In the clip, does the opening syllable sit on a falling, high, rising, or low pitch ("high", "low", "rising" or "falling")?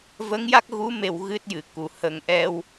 rising